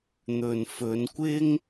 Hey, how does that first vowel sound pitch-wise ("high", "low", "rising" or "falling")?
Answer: low